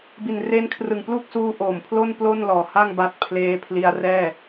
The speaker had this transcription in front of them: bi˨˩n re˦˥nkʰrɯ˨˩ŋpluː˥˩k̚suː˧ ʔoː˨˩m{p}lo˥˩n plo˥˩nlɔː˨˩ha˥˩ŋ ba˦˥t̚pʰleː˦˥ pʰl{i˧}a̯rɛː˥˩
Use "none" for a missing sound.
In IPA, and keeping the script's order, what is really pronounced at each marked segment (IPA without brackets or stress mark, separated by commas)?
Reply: pʰ, i˧